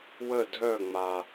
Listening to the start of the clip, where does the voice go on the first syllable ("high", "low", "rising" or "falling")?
falling